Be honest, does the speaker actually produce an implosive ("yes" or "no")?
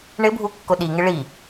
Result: yes